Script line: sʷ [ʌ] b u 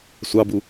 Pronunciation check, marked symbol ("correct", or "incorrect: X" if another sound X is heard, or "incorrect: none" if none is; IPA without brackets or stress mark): incorrect: ɑ